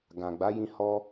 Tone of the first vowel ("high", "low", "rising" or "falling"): low